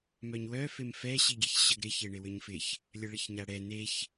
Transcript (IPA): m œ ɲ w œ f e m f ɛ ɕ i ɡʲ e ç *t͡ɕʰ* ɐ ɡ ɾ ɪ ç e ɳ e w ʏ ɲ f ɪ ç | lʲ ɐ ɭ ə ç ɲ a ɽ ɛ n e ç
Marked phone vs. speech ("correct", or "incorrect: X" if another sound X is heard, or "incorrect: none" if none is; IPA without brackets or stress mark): incorrect: ɕ